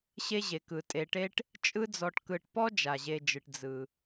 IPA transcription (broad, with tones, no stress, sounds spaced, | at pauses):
ɕ e˦ ʑ e˩ k ɯ˩ tʼ e˩ ʈ e˦ ʈ | t͡ʃʼ ɯ˦ d͡z ɔ˨ ʈ k ɯ˨ ʈ p ɔ˥ d͡ʒ a˩ ʑ e˨ d͡ʒ ɯ˩ ʈ d͡z ɯ˩